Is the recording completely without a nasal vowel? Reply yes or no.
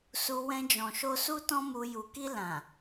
no